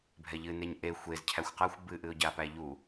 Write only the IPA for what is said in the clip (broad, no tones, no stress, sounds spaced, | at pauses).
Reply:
bʱ ɛ ʎ ɨ n e ɲ ʔ e xʷ e z cʰ æ xʷ q a xʷ b ɨ ʔ ɨ ʊ̯ ɟ a p æ ʎ u